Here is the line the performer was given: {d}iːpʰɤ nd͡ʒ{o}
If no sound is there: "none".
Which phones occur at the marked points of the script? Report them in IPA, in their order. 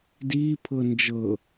d, ɤ

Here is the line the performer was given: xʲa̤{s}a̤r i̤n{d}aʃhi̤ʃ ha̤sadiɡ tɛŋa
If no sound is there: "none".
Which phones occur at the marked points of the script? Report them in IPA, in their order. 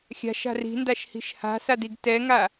ʃ, d

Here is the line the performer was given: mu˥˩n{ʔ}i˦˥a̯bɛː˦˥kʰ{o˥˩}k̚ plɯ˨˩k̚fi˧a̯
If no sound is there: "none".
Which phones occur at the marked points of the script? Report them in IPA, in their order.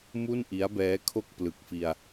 ʔ, o˥˩

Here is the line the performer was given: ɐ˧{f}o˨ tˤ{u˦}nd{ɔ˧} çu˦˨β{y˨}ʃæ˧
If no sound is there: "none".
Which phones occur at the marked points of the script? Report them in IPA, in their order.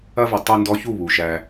v, u˧, ɔ˧, u˨

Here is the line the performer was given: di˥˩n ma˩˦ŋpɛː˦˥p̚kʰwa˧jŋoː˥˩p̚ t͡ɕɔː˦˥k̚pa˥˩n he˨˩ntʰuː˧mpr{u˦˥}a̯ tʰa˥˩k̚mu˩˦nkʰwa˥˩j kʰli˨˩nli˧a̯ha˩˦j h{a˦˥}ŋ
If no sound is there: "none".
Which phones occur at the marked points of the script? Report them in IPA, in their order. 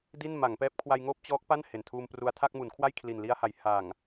u˧, a˨˩

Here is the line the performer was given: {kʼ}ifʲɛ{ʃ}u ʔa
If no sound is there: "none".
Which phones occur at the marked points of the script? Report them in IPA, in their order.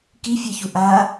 k, ç

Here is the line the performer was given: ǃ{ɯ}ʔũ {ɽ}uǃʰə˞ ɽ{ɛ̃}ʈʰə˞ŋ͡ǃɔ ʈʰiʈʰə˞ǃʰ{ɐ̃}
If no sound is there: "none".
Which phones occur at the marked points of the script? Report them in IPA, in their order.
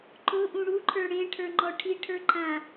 ʊ, ɽ, ẽ, ã

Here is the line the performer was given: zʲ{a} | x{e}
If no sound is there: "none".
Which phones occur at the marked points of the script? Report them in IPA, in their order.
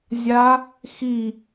a, i

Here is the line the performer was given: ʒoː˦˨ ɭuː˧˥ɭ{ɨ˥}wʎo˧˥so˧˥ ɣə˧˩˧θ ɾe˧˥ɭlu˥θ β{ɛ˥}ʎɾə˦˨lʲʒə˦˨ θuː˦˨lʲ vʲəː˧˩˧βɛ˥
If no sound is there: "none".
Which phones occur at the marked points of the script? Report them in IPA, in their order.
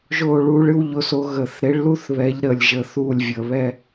ɨ˥, ɛ˧˥

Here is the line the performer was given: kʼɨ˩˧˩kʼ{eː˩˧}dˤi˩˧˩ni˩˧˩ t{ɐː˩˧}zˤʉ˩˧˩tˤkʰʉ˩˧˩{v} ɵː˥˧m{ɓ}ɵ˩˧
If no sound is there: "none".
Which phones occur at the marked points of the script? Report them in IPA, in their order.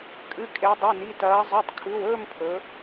e˩˧, ɐː˩˧, w, pʰ

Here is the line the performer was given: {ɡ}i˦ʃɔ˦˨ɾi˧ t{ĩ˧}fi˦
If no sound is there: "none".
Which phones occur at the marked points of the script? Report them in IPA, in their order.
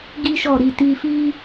ɡ, i˧

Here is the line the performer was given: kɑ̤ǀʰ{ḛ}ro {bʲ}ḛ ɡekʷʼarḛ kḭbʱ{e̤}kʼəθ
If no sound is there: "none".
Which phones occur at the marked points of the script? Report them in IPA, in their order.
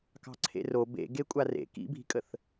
ḛ, b, i̤

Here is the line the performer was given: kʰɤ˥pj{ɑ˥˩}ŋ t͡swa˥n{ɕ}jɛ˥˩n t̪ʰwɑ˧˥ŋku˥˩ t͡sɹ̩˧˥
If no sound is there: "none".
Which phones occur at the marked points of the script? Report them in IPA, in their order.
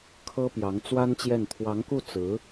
ɑ˧˥, t͡ɕ

